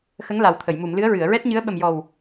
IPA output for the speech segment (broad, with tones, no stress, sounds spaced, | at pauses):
x ə˧˥ ŋ l a˨˩ w t̪ʰ ə˨˩˨ j m u˨˩˨ m l ɨ˧˥ ə̯ ɹ ɨ˨˩˨ ə̯ ɹ ɛ˦˥ t̚ ɲ ɨ˧˥ ə̯ ɓ ə˨˩ m j ɔ˨˩ w